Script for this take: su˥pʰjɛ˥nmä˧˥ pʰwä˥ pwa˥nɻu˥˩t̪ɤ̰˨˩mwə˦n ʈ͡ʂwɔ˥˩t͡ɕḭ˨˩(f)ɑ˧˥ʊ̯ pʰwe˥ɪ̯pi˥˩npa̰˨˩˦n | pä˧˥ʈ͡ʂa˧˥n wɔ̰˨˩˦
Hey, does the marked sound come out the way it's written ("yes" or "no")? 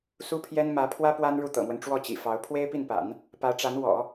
yes